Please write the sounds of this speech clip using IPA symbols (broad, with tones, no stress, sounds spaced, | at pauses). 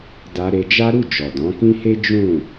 d a˧ ɾ e˧ d͡ʒ a˦ ɾ u˦˨ d͡ʒ ɔ˨ d ɔ̃˨˦ k ĩ˦ h e˦ d͡ʒ ũ˦˨